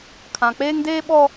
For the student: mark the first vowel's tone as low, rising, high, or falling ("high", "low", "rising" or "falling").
low